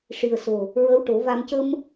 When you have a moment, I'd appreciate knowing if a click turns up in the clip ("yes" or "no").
no